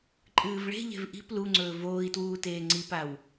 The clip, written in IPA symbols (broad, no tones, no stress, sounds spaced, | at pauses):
ǃʼ ɨː v ɭ e̤ ʎ e̤ v ʔ i̤ p l u ŋ͡ǀ ɵː v oː i̯ t w uː t eː ŋ͡ǀ i p a w